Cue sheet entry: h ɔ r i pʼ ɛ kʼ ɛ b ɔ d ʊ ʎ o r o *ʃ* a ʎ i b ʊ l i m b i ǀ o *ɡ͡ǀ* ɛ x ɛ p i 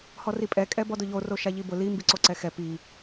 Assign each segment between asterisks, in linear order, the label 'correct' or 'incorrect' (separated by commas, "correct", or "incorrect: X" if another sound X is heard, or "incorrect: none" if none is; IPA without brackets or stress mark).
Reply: correct, incorrect: ǀ